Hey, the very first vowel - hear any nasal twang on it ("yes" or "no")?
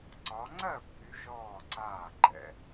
no